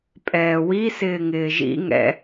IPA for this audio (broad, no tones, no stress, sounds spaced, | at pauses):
pʼ ɛː w i s ɪː ŋ ɪː ʒ ḭ ŋ ɛ̰